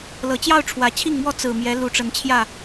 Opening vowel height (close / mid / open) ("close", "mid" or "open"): mid